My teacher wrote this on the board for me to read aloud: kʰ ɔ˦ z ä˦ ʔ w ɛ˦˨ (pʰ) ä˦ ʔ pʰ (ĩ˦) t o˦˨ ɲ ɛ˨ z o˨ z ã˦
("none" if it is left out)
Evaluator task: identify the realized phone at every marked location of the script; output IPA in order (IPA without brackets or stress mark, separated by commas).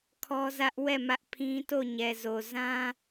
m, ĩ˦